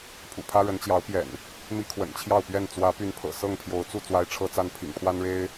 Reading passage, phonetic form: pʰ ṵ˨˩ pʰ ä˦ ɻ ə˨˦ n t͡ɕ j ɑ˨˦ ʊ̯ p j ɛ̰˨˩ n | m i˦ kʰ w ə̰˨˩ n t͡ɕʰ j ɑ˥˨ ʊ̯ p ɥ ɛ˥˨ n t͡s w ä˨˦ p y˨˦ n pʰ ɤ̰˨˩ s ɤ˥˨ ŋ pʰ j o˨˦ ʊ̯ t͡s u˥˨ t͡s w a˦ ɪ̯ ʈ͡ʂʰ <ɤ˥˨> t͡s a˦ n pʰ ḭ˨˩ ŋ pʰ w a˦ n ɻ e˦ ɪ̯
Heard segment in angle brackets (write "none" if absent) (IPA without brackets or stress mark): ɤ˦